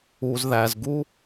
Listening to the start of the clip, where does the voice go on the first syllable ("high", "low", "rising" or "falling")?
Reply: low